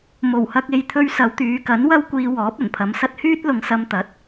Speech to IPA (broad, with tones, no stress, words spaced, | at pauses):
mo˨˩whɐ˧k̚e˨˧jt̪ʰɵ˧ɥ sɐ˨˧wt̪yː˨˧kɐ˨˥n wɐ˥wkʷiː˧wɔː˨˥p̚ ɐ˨˩npʰɐ˨˧msɐ˥t̚ hyː˥t̚lʊ˨ŋsɐ˧m t̪ɐ˨˥t̚